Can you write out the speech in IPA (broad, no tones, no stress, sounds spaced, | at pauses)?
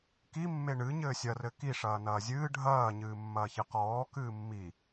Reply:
k i mː e ɳ ɨ ɲ ɘː sʲ ɐ r ɘ k i ʂ ɐː n ɐː zʲ ɨː ɖʱ ɐː ɲ ɨː mː ɐː ç ɨ q ɔː k ɨː mː i